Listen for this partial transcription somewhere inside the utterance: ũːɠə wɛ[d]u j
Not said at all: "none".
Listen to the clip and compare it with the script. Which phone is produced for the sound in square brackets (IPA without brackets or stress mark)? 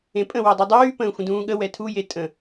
tʰ